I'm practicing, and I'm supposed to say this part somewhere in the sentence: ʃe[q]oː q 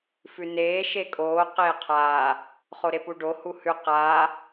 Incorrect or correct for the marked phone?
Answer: incorrect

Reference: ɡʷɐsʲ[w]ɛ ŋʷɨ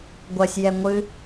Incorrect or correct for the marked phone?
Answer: incorrect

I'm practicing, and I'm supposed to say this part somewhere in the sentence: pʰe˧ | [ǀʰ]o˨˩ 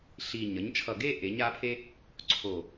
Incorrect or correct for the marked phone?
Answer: correct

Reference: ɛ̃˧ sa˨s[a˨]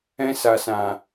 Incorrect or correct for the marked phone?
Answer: incorrect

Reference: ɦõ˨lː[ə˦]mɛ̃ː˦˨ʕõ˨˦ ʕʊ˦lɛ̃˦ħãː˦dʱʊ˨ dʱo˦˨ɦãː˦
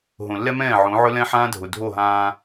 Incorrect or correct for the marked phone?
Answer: incorrect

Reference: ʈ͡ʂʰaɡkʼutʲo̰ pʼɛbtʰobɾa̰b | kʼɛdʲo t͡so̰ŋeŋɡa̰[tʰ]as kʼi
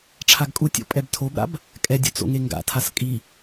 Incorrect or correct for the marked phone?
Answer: correct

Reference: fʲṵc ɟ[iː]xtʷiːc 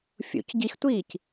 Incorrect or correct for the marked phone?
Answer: incorrect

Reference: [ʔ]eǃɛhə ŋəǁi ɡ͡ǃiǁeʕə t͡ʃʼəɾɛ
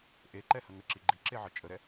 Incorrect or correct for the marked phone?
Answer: correct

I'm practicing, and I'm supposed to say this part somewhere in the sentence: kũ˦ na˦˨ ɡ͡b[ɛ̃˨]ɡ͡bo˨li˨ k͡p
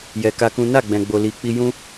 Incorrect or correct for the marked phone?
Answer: correct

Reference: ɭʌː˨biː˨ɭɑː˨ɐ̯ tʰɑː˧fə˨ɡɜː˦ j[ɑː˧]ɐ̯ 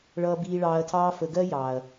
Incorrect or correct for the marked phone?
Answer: incorrect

